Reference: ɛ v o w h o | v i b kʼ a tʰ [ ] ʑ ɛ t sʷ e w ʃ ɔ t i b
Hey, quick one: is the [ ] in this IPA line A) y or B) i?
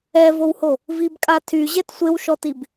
A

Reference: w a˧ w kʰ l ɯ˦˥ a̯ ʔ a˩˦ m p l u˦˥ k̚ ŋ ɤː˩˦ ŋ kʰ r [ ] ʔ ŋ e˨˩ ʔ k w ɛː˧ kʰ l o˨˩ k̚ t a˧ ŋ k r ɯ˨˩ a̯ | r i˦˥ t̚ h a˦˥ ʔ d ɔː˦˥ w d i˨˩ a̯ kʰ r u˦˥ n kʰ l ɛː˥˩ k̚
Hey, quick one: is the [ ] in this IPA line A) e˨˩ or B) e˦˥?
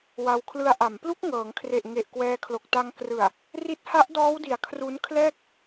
A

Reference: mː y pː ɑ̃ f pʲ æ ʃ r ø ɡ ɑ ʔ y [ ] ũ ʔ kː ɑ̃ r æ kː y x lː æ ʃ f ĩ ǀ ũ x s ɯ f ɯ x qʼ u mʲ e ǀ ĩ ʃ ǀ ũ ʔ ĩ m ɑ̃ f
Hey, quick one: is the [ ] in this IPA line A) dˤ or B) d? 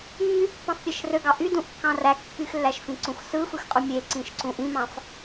B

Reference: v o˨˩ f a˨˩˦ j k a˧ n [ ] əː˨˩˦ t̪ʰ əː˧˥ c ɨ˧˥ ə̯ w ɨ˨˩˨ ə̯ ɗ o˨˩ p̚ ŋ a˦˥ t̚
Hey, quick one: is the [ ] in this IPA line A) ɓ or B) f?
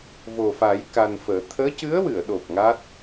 B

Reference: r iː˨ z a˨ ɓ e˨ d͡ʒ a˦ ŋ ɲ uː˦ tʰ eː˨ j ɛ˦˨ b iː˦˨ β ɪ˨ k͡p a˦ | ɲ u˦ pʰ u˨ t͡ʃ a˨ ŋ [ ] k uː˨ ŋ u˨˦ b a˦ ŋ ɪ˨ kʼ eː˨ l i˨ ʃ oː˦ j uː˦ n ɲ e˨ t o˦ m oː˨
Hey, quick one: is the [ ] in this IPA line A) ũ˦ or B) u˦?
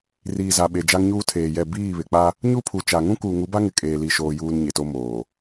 A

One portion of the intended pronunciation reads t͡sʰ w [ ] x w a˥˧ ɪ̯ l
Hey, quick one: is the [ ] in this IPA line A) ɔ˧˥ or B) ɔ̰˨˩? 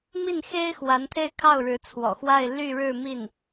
B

